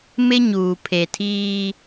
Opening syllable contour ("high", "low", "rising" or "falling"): high